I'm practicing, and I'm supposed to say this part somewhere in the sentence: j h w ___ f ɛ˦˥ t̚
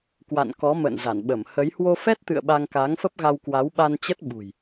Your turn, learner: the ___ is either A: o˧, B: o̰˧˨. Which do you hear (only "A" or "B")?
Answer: A